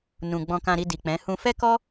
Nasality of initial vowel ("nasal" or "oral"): nasal